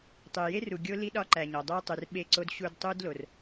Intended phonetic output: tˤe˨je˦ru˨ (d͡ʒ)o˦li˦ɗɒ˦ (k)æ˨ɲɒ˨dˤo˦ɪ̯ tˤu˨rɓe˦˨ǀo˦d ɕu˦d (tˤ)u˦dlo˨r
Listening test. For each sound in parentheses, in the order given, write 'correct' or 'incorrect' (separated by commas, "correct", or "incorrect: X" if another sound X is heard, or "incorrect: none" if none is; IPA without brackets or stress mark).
incorrect: ɡʲ, incorrect: ǃ, correct